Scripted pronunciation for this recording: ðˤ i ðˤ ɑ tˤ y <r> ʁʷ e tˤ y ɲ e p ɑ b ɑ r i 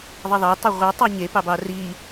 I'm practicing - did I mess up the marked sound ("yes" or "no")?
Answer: yes